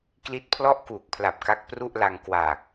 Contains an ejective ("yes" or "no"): no